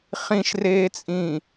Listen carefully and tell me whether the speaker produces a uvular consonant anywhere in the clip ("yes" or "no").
yes